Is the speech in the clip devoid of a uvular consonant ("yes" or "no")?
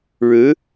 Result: yes